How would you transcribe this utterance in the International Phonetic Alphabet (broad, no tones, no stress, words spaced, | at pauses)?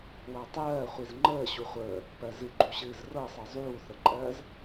watˤɜː χʷizŋ͡ǃəː ɕuχʷəː | pɜzɨ ɡ͡ǃuɕɨːzrɤsˤɜ zˤuːθəǃʼɜːz